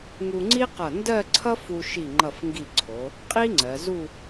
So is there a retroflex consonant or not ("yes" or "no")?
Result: no